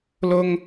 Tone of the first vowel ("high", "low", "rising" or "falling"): high